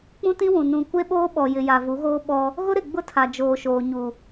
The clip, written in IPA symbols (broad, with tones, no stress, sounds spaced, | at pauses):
k͡p ũ˦ t ĩ˦ w ũ˨ n ũ˨ kʷ e˦ ɓ oː˦ ɓ ɔ˨ j ɪ˨ j a˨ v u˨˦ ɣ oː˦ ɓ ɔ˦ | ɣ ʊ˦ ɾ ɪ˨ ɡ͡b ʊ˦ tʰ a˨ d͡ʒ oː˨ ʃ oː˨ ɲ u˨